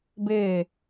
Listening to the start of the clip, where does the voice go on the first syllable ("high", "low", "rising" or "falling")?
falling